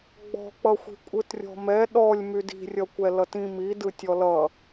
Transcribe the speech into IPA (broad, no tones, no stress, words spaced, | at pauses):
ɡ͡bɔ̤k͡pʌxʷi̤ kʷʼɯtrʲɔ̤mɛ ɗɔlʲ mydi̤rʲʌkʷɛ lʌtĩ midɯ tʲɔlʌ